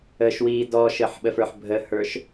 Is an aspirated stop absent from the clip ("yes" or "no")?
yes